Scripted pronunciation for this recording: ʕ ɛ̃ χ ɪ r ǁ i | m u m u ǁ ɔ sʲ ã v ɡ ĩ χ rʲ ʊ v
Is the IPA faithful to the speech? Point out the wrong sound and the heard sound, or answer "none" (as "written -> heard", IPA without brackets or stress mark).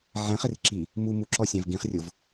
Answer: none